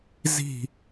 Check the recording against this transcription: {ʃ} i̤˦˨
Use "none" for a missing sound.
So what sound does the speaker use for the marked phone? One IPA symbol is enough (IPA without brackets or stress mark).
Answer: z